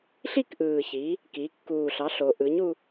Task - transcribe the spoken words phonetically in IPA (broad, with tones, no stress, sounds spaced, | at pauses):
ɬ i˥˨ k ʔ ɯː˨˩ ç i˩˧ | k i˩˧ kː uː˨˩ ɬ ɑ˩˥ ɬ o˩˧ ʔ ɯ˩˥ ɲ u˧